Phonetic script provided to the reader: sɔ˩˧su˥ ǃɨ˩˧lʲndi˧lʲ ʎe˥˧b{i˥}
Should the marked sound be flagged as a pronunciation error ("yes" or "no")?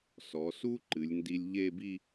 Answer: yes